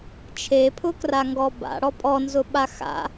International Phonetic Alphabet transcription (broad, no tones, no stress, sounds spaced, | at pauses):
t͡ʃʰ e pʰ ʊ k r a ŋ ɡ ɔ b a̰ ɽ ɔ pʼ ɔ n z ʊ ɓ a x a̰